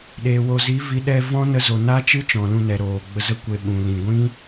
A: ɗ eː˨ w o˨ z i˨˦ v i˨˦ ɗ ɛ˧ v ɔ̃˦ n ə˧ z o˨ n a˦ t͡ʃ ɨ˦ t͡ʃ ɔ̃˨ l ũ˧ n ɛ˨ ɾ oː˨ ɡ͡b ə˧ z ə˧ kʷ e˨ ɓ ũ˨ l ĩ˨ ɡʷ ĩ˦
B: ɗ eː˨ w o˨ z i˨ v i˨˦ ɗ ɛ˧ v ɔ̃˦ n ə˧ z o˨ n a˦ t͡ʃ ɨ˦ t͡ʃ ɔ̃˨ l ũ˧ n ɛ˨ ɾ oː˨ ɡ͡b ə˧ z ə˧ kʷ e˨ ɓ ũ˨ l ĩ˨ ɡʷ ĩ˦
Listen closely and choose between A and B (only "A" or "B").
A